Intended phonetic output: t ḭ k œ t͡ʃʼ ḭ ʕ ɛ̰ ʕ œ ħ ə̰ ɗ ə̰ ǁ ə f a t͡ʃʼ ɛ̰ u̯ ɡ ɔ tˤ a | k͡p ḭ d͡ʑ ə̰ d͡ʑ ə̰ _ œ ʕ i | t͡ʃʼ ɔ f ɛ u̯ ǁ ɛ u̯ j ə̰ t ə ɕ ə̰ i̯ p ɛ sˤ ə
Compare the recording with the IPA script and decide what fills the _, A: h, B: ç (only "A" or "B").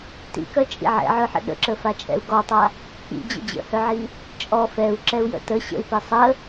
A